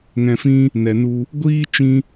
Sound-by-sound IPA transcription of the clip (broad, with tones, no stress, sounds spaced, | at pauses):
ŋ ɛ̃˧ f ĩ˦ | n ɛ˨ n u˧ | ɡʷ iː˦ t͡ʃ ĩ˦